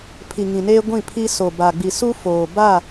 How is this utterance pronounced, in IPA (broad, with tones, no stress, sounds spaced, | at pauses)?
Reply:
pʰ i˨ ŋ ĩ˨ n eː˦ ɡʷ ĩ˦˨ pʰ i˦ s o˨ b a˨ ɡ͡b i˨ s u˦ f oː˨ b a˦˨